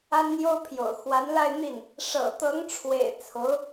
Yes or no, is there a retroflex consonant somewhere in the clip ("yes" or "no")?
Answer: yes